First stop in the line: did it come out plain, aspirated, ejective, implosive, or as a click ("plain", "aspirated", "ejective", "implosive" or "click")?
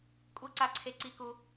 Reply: ejective